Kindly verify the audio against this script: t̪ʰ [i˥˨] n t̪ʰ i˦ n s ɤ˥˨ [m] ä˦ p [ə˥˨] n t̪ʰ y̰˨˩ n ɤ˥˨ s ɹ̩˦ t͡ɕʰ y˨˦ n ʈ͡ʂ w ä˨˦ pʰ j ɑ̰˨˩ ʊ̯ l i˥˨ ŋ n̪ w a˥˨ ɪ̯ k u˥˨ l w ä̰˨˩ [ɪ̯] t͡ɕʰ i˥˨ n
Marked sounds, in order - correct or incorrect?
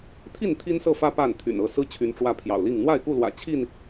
correct, incorrect, incorrect, incorrect

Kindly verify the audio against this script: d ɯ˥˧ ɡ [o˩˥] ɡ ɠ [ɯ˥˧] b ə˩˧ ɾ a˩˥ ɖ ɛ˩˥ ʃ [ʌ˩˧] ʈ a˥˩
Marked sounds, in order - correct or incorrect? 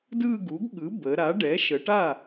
incorrect, incorrect, incorrect

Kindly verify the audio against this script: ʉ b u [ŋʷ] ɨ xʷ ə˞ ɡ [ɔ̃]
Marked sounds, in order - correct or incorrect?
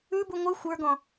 correct, correct

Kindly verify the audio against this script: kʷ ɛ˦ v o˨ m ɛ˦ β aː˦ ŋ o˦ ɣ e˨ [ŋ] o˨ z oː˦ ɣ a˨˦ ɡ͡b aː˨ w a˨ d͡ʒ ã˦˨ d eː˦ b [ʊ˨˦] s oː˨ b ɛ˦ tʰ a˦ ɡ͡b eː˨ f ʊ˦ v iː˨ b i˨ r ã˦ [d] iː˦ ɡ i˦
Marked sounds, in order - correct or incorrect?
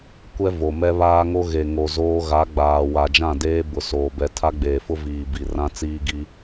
correct, correct, incorrect

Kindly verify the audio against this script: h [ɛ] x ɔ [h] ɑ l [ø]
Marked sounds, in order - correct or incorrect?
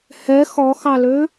correct, incorrect, correct

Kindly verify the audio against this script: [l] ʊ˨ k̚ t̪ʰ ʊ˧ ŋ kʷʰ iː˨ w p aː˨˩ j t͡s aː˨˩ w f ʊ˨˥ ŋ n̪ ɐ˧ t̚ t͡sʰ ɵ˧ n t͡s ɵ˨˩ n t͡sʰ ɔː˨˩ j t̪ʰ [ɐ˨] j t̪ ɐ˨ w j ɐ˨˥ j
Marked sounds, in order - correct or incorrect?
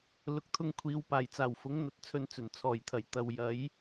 correct, incorrect

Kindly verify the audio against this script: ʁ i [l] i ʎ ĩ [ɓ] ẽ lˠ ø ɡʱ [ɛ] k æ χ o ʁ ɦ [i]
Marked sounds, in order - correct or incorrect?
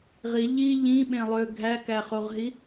incorrect, correct, incorrect, correct

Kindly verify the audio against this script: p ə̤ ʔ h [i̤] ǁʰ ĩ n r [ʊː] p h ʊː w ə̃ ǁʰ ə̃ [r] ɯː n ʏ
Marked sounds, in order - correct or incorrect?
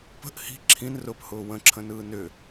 correct, correct, incorrect

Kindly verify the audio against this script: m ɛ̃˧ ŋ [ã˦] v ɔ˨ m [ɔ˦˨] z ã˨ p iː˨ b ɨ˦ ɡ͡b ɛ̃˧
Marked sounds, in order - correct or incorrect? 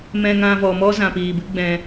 incorrect, incorrect

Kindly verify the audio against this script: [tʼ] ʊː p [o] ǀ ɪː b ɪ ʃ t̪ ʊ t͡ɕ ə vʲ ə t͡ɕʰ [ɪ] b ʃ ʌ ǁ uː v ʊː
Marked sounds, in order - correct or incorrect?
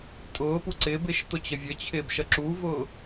correct, incorrect, incorrect

